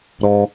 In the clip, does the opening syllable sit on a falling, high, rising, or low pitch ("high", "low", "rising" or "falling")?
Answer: high